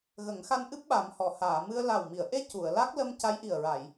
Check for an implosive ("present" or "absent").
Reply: present